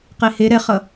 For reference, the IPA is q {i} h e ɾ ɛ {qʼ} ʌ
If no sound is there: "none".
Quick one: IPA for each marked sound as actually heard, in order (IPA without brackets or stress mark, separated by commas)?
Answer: e, χ